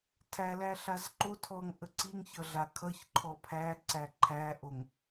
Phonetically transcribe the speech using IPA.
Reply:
tʰælæɬaz ǃo tʰɔŋʔə ǀiŋçʌɮa kʰʌçǃʰɔ pʰæǀæ ǃʰæʔoŋ

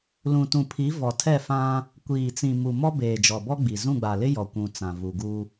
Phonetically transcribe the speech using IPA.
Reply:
lũ˨tũ˨pʰi˨˦ vɔ˨ tʰɛ˦˨fã˦ | kʷiː˨t͡sĩ˨ mu˨ mɔ˦ beː˨d͡ʒɔ˨bɔ˦ ɡ͡bi˨ zũ˦˨ɡ͡ba˨lɪ˦ jɔ˨kʷũ˨ t͡sã˨vu˨ɡu˦

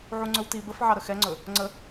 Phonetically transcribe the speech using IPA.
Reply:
ʕuŋ͡ǀɵwti bəfʕɑɾə xɛŋ͡ǀɵ | ŋ͡ǀə

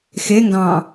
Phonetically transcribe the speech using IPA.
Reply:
xeŋɡɑ̃ː

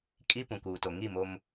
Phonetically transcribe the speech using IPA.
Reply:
kʼi˦pũ˨kuː˨to˨ ŋi˦˨mo˦m

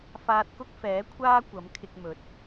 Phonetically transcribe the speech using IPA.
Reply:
faː˧t̚kʊ˥k̚fɛː˨˥kʷʰaː˥ kʷɐ˨˥mkʰɪ˧k̚mɵ˨˥t̚

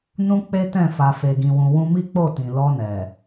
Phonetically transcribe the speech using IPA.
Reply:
nũ˦k͡pe˦tɛ̃˦˨ fa˨fe˨ɡĩ˨wũ˨ wũ˧mi˦k͡po˦˨tĩ˨ lɔ˧nɛ˨

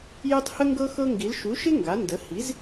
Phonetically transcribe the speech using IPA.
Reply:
je˦tˤhə˦ŋɡɤ˦ xɤ˦ŋɡi˩˥l ʃu˩˥ʃɪ˦ ŋɡa˩˥ndə˩˥ hi˩˥z

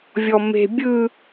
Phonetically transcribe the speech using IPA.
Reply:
vʲɔme̤ bʲɯ

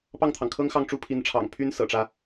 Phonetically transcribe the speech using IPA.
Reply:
pɑ˥˩ŋt̪ʰɑ˩ŋkʰɤ˥ŋxɑ˥˩ŋ ʈ͡ʂu˥pʰi˧˥n ʈ͡ʂʰɑ̰˨˩ŋpʰy˥n sɤ̰˨˩ʈ͡ʂä˦

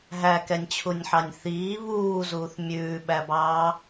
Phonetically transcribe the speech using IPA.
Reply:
ɦækɛnʲt͡ɕʰunʲħɑnʲ θiː βuːzuːθ mʲʉːɓæbɑː

